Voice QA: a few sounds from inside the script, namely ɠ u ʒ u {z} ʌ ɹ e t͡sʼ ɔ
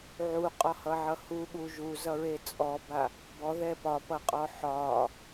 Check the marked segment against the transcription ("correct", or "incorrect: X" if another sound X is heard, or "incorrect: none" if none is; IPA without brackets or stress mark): correct